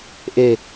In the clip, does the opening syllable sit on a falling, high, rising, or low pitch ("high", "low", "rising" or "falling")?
low